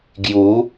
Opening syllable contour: rising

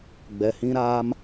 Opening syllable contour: low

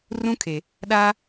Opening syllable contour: high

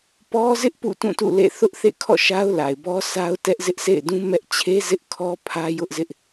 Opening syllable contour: high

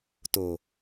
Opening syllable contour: low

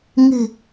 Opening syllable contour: low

